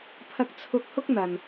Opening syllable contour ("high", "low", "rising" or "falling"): high